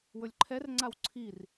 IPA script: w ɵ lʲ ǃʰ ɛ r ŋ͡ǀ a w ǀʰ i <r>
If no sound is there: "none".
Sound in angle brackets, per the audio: r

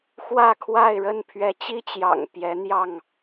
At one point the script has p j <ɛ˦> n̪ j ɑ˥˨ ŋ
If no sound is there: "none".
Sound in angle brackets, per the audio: ɛ˨˦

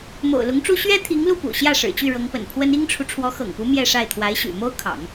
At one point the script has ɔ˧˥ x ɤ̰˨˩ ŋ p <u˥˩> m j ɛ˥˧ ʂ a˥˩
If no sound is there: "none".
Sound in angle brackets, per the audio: u˧˥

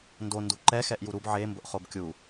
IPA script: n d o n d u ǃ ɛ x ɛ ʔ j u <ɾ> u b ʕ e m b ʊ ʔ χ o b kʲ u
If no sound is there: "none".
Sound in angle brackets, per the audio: ɾ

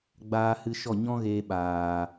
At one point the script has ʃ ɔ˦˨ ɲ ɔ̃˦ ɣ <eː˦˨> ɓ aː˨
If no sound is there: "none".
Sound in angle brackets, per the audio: eː˧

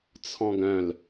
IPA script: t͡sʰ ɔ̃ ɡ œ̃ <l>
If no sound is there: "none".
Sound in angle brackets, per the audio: l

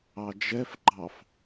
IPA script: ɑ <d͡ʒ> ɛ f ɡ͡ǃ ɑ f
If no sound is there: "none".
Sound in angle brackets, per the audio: d͡ʒ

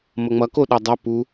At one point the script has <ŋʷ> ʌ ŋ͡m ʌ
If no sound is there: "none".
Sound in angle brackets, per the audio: m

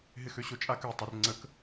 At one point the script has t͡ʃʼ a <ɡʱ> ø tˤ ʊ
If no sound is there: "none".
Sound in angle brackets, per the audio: k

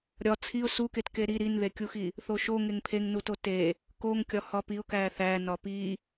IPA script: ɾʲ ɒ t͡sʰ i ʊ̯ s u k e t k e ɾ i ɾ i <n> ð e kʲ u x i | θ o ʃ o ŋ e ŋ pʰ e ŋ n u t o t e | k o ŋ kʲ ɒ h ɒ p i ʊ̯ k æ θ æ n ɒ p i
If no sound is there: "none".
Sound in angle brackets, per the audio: n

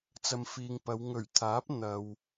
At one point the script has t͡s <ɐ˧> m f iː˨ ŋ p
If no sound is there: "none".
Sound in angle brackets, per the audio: ɐ˨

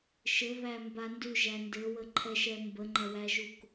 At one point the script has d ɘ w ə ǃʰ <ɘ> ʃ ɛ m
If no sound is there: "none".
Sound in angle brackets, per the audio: ɛ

